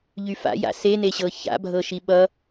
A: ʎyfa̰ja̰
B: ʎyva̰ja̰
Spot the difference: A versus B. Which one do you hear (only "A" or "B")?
A